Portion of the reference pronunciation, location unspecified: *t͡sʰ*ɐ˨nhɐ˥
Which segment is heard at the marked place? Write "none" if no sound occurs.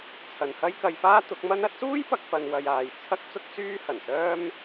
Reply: t͡sʰ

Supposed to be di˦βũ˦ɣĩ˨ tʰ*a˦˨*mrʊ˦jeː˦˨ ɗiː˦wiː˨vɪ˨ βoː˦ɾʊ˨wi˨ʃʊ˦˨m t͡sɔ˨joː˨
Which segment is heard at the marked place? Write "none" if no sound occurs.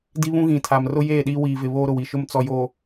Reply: a˨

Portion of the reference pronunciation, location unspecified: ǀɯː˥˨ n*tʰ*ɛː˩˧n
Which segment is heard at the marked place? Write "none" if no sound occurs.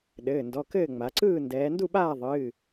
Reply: d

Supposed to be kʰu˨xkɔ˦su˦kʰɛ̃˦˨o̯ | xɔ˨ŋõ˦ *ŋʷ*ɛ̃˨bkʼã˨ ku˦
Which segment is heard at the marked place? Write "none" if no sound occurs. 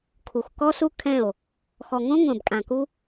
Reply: ŋʷ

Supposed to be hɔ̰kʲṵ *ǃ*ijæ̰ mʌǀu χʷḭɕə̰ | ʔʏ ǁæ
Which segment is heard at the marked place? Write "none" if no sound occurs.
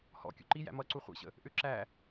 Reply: ǃ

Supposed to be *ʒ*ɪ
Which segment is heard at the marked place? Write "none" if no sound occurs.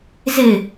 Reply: z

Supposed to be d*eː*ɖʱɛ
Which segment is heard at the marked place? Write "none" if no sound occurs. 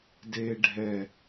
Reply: eː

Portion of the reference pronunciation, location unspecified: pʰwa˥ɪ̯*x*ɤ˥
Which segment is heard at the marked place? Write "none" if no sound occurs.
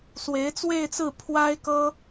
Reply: k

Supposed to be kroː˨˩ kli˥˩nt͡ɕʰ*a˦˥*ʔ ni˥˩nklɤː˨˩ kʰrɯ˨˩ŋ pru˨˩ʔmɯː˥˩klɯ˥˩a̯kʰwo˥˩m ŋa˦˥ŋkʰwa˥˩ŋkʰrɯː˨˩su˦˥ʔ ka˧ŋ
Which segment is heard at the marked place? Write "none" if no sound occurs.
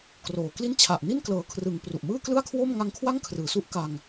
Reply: a˨˩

